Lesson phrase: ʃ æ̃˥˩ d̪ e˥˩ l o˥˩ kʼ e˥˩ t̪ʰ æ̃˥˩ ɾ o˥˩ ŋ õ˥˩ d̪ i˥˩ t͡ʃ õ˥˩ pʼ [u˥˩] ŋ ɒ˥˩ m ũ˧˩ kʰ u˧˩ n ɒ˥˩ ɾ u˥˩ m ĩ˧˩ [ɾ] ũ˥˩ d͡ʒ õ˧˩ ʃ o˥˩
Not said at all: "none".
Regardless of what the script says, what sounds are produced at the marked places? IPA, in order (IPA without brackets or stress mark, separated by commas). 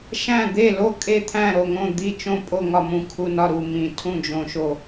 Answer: o˥˩, tʰ